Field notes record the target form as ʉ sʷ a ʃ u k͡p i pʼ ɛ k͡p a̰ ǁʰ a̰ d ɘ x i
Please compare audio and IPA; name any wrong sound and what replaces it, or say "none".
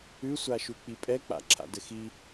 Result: none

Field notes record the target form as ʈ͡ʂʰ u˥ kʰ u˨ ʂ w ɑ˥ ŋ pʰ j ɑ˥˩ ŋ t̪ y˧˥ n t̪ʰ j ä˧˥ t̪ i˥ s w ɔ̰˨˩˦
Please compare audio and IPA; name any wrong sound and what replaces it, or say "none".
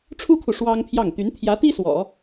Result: none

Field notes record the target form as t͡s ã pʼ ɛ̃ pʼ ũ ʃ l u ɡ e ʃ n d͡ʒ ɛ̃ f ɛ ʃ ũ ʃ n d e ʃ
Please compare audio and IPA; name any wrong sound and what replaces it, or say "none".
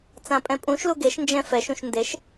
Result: none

